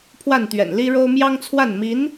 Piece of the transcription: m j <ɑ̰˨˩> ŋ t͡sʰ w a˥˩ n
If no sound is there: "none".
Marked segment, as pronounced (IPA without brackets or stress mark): ɑ˥